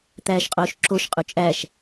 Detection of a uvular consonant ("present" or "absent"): present